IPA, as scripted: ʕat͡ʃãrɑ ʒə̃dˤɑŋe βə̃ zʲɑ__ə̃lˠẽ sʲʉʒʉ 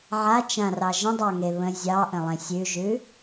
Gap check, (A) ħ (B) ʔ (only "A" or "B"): B